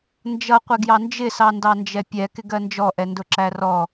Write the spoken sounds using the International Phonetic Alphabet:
nd͡ʒʌ qʷɪɡjɑnd͡ʒɪ sɑndɑnd͡ʒɛpʲɛ kɪɡɜnd͡ʒɔ ʔɛndʊǁærɔ

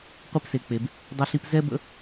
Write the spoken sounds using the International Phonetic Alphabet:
qʷɛ˥pse˨k͡pe˩b | dˤɘ˥ɬi˥p zɛ˥bə̰˦

